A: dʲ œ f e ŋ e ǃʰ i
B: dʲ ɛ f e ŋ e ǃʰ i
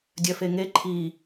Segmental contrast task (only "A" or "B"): A